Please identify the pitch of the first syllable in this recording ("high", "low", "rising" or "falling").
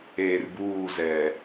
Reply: low